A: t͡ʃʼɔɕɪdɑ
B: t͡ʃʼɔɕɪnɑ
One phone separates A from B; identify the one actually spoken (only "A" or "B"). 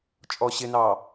B